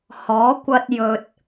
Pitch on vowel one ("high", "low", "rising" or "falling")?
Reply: rising